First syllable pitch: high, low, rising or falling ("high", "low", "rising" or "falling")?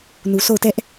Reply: low